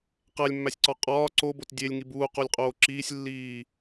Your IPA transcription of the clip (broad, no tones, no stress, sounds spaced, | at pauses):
q æ lʲ mː æ sʲ ǀ ɒ qʼ ɒː ǀ o b o t dʲ e lʲ ŋ i b uː q o lʲ qʼ oː ǁ iː sʲ lː iː